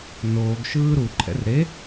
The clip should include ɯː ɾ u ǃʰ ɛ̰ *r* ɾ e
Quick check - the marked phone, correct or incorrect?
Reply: correct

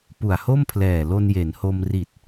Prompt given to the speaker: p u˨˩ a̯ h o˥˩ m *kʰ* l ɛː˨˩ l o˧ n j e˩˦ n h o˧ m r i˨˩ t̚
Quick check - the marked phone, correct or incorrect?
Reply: incorrect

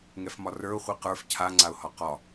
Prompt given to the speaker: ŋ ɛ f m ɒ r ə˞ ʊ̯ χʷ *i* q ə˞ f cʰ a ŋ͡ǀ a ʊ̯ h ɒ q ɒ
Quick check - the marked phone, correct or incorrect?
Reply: correct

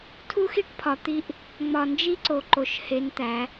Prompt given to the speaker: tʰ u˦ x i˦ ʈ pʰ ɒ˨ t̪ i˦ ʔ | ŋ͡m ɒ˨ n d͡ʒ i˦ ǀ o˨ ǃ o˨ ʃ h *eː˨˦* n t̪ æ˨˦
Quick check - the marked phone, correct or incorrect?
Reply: incorrect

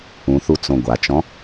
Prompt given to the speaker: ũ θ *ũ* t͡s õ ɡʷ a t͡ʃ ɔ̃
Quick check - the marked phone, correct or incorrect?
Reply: incorrect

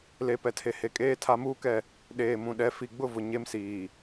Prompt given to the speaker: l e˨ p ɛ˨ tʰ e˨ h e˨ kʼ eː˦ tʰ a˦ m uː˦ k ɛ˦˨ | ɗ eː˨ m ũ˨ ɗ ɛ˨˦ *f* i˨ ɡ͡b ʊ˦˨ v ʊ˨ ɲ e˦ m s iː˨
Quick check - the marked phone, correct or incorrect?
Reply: correct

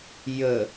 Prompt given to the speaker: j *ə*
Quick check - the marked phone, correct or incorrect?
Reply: correct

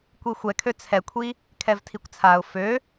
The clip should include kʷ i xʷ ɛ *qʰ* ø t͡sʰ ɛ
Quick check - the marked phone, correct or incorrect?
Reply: incorrect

